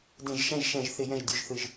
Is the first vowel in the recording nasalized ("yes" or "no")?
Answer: yes